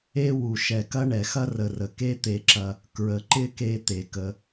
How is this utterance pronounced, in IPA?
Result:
e˥ w u˨ ʃ ɛ˨ k ɐ˦ ɳ ɛ˩ x ɐ˥ r ə˨ r ə˩ k e˥ t̪ e˨ ǁ ɐ˨ | k ɹ ə˨ ǃ ɪ˥ k e˦ t̪ e˩ k ə˨

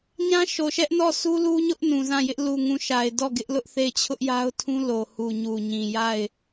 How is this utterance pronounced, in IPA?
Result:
ɲ ã˦ ʃ o˨ ʃ ɛ˦ ʔ n ɔ˦˨ s u˦ l u˦ ɲ ʊ˦ ʔ n ũ˨ z ã˦˨ j ɪ˦ ʔ l u˨ ŋ ũ˨ ʃ a˨ ɪ̯ d ɔ˦˨ ɡ ɪ˦ ʔ l ʊ˦ ʔ θ e˦˨ ɪ̯ t͡ɕʰ ʊ˦ ʔ j a˦ ʊ̯ tʰ ũ˦ l o˨ h u˨ ɲ u˨ ɲ ĩ˨ j a˦˨ ɪ̯

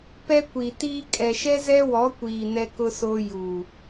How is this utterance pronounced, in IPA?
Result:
p ɛ˦ kʷ i˨ t iː˦ kʼ ɛ˨ ʃ ɛ˦ z ɛ˦ w ɔ˨˦ kʷ iː˨ n ɛ˦ k ʊ˦ s oː˦ j u˨

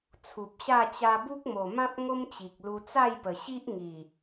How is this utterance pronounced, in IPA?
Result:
t͡sʰ u˨ p̚ ɕ a˥˧ t͡ɕ a˧ b u˦ k̚ m o˨˩ m ã˦ p̚ ŋ o˦ m t͡ɕ i˨ k̚ l u˧ t͡s a˥˧ j p ə˨˩ ɕ i˦ ʔ ŋ i˨˩

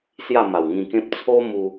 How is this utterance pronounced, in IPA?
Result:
s j a˥˧ m a˨˩ w ŋ ĩ˧ k ẽ˦ p̚ t͡sʰ o˦ m u˦

